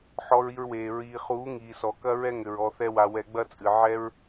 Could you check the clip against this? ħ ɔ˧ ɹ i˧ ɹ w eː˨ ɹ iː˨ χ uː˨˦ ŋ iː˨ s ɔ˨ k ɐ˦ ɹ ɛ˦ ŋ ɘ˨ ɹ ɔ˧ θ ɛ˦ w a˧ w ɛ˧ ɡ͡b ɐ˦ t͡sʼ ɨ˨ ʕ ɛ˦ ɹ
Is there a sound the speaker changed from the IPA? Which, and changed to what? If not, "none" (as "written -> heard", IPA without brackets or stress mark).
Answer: none